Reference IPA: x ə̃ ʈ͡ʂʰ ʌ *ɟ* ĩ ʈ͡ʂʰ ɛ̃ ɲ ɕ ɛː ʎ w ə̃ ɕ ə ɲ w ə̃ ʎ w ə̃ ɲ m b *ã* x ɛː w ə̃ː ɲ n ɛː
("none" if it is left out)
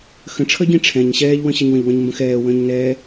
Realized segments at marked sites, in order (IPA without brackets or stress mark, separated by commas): ɟ, ə̃